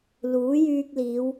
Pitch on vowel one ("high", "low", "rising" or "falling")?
rising